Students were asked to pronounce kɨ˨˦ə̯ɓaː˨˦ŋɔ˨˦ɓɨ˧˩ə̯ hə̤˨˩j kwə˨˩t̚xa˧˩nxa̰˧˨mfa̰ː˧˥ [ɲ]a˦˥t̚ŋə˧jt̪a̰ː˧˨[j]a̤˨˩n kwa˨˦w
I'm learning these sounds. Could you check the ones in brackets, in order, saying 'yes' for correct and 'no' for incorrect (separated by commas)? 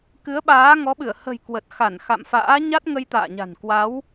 yes, no